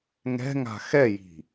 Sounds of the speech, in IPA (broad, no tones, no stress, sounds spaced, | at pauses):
ŋ ɛ̤ ŋ a̤ x ɛ j i̤